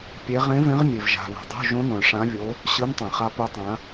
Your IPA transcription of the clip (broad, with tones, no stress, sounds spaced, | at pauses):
pʲ e˧˥ ʁ ẽ˧˥ v ẽ˧˥ ʁ mʲ e˨ v ʒ a̤˨ β o̤˨ dˤ o̤˧˥˧ ʒ õ˧˥ n õ˨ ɭ ʂ ã˧˥ vʲ o˧˥ | ɕ ɯ˧˥ n tˤ ɛ̃˨ χ a˧˥ p u˧˥ tˤ ã˧˥